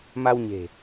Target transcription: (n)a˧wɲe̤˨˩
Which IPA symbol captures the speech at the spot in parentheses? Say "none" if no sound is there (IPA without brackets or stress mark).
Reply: m